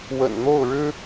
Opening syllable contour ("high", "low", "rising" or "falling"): low